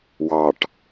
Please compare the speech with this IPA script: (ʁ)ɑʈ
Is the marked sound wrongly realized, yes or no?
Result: yes